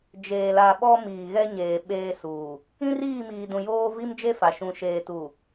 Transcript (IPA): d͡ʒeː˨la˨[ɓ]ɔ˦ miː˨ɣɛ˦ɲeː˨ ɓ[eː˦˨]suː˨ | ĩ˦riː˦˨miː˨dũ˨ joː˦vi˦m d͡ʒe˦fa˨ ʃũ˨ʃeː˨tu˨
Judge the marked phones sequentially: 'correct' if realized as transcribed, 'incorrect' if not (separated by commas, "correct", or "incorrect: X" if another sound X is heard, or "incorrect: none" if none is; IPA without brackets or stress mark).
correct, incorrect: eː˦